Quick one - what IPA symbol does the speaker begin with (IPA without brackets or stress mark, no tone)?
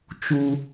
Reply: t͡ʃ